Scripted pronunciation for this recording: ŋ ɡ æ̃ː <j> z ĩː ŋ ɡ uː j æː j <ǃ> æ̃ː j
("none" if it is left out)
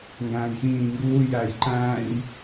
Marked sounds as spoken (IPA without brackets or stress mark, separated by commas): j, ǃ